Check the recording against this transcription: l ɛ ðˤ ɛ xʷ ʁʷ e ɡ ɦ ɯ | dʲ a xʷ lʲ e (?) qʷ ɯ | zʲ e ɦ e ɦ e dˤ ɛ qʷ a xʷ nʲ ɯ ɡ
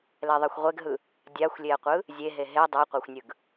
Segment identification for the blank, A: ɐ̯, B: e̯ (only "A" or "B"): A